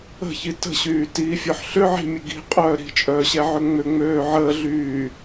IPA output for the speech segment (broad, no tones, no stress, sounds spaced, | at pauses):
ə̤ ç i t ə̤ ɕ yː t iː fʲ œ ħ ɬ ʏ ʕ i̤ mʲ ə ɡ i̤ qʼ œː ɾ i̤ t͡ʃʼ œː ɕ ɛ ʕ ʏ ŋ͡m ʏ ŋ͡m øː ʕ əː ɮ yː